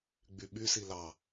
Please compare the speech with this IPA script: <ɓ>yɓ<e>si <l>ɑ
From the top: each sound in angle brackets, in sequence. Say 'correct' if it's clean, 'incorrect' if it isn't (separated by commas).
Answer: incorrect, incorrect, correct